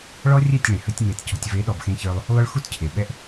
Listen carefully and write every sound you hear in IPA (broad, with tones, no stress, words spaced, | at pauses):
ɭɔ˦rʲɛ˦˨tʲɭẽ˨ hə˦tʲŋ͡me˧tcɔ̤˧tʲ ve˨˦ɗɔ˨bxẽ˧çə˞˧lˠ | lˠʏ˦ɭ xu˦tcʰe˨ɓɛ˦ʔ